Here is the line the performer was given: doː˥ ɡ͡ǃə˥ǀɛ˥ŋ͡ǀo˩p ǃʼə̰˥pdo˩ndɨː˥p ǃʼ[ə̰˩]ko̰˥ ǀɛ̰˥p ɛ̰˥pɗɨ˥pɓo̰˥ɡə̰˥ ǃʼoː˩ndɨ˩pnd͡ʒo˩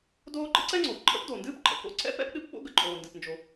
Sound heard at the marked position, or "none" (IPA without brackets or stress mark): ə̰˩